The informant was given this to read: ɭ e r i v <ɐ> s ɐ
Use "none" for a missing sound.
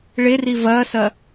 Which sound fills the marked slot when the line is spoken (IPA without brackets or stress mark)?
ɐː